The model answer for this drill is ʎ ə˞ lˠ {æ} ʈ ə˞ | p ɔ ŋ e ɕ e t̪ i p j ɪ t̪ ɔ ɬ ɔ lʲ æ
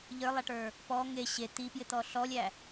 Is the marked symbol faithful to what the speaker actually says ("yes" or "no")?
yes